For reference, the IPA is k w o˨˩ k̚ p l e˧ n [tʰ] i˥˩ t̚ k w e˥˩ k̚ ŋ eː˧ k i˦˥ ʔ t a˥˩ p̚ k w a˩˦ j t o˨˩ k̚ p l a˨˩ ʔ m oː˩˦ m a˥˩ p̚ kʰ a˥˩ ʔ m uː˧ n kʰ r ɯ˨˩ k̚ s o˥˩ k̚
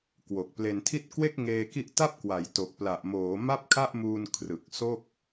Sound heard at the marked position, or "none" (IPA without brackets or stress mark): tʰ